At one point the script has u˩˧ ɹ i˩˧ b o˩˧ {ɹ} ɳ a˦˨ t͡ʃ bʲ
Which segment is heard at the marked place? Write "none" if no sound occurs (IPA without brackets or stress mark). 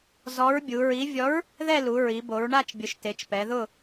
ɹ